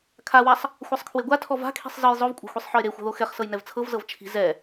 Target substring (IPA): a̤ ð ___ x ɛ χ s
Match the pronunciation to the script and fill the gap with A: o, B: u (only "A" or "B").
A